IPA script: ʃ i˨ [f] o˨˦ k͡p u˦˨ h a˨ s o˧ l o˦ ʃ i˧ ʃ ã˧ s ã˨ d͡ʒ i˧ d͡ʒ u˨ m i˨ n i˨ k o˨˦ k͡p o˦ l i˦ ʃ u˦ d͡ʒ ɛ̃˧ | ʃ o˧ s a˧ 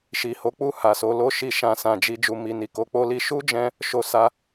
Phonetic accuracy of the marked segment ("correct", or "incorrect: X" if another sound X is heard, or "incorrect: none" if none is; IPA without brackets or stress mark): incorrect: h